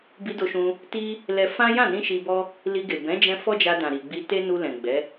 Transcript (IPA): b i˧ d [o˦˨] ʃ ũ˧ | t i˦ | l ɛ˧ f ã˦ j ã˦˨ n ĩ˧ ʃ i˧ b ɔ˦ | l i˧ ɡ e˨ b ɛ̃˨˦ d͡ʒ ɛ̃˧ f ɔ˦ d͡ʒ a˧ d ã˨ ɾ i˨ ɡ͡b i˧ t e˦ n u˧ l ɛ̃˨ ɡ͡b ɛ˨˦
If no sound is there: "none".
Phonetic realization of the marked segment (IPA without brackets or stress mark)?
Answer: o˧